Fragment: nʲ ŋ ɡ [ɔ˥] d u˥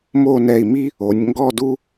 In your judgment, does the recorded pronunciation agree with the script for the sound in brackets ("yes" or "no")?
no